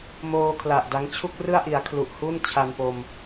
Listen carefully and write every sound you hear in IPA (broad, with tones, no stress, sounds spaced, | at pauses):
m oː˧ kʰ l a˨˩ ʔ d a˦˥ ŋ t͡ɕʰ u˥˩ k̚ r ɯ˥˩ a̯ ʔ i˩˦ a̯ kʰ l u˨˩ ʔ h u˥˩ n t͡ɕʰ a˧ n p o˧ m